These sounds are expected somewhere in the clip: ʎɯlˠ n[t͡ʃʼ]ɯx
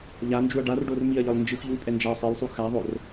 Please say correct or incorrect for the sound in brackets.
incorrect